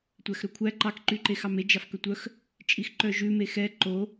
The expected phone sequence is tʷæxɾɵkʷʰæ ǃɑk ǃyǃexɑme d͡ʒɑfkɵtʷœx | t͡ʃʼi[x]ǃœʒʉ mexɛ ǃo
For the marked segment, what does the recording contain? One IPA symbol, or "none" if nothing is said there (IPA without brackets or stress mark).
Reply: x